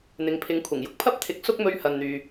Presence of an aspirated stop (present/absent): present